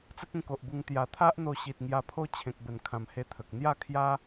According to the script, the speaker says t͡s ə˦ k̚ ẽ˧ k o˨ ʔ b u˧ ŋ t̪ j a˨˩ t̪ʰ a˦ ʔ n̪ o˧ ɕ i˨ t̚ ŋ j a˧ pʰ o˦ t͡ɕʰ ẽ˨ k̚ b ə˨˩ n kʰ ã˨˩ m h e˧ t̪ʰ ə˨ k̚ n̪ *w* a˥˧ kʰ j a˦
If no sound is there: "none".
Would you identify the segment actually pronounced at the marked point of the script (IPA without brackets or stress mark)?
j